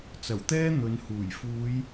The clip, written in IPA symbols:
t͡s ɐ˨˩ w t̪ ɛː˥ n̪ ɵ˨˧ n h uː˨˩ j f uː˨˧ j

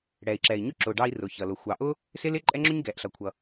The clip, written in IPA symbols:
ɽ ɛ˩ i̯ ǁ ɛ˩ i̯ ɲ ʊ˧ ǁ ʊ˩ ɖ ɑ˧ i̯ r ʊ˩ ç ʌ˩ l ʊ˩ xʷ ɑ˩ ʔ ʊ˥ | s ɪ˥ l ɪ˥ ǃʼ ɛ˥ ŋ͡ǁ ʊ˥ ɲ ɡ ɛ˩ ʔ ɬ ʌ˩ kʷʰ ʌ˩

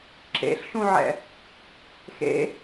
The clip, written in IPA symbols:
ǁ ḛ ɬ ʃ ũ ʕ ɛ̰ | x ḛ

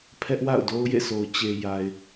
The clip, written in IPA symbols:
pʰ ɛ˦ ʔ w a̰˦˨ ʊ̯ d o˦ ʊ̯ j ḛ˦˨ sʰ o˨ ʊ̯ t͡ɕ e˨ j a˨ ɪ̯

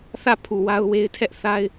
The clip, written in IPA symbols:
θ ä˦˨ pʰ u˨ w a˦ ʊ̯ w e˦ ɪ̯ tʰ ɛ˦ ʔ θ a˦ ɪ̯

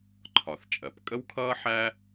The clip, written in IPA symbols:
ǃʰ ɒ˩ θ t͡ʃʼ ɜ˩ p kʼ ə˥ w kʰ ʌː˥ ħ æ˥

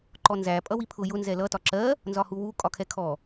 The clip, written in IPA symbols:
ǃ ɔ n z æ pʼ ʌ w i pʰ ʊ j ʊ n z ɛ l ʌ t ɒ ǁ ɜ | n z ɒ h u w u kʼ ɒ kʰ ɛ kʰ ɔ

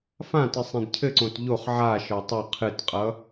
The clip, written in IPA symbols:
f ã t ɨ sˤ ẽ d cʰ ɘ ǀ õ t ʎ o χ ʕ a ʃ ɒ tˤ ʌ qʰ ɨ t qʼ ʌ

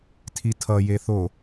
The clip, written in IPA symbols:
tʰ i tʰ ʌ j e θ o

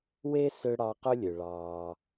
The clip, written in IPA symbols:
w e˥ s ø˦ ɽ ɑ˦ q ø˥ lʲ ø˨ ɭ ɑː˨

